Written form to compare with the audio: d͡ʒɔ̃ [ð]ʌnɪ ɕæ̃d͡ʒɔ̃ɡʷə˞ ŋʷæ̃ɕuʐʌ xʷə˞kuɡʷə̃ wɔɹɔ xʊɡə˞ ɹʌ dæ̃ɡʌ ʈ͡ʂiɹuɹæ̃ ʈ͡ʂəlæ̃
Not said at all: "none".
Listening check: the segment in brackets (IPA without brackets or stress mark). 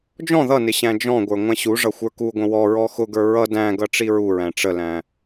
ð